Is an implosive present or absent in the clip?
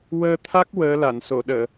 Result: present